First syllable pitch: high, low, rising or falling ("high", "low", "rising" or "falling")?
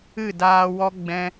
falling